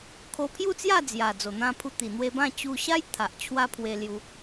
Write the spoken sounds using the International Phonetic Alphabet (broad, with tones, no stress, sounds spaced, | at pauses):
kʰ o˧ pʰ j u˥˧ t͡s j a˥˧ d͡z j a˨˩ d͡z o˨˩ n̪ ã˧ pʰ u˧ t̪ i˨˩ n̪ w e˧ b ã˥˧ t͡ɕ u˧ ɕ a˦ j t̪ʰ a˨ ʔ t͡ɕʰ w a˦ pʰ w e˧ l j u˧